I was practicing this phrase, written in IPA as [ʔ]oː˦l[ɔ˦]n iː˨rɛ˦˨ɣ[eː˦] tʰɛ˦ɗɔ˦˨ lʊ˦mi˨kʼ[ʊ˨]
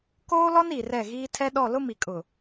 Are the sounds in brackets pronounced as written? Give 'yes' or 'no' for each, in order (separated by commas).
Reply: no, yes, no, yes